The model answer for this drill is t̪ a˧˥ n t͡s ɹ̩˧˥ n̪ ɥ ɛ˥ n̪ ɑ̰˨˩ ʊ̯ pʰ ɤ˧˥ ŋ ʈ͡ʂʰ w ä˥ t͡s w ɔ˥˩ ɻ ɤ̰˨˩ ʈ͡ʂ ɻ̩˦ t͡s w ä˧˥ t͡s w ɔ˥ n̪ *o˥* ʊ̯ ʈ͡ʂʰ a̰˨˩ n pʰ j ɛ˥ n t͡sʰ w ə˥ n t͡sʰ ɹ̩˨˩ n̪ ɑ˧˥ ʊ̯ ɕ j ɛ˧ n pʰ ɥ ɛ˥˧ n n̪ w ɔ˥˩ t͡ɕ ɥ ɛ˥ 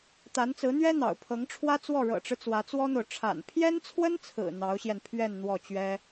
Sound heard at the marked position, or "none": o˨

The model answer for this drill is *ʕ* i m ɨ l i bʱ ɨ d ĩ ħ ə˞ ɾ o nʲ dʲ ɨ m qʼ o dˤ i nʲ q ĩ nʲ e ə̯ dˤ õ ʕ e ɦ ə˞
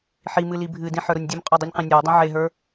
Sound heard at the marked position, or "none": ħ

